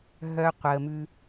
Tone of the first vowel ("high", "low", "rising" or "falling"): high